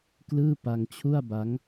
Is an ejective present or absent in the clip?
absent